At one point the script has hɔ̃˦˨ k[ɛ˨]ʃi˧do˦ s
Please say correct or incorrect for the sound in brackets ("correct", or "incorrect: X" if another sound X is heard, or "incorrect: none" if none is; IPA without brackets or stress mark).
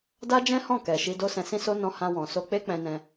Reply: correct